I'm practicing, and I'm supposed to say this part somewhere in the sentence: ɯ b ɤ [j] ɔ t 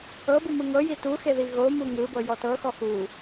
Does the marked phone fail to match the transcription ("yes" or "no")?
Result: no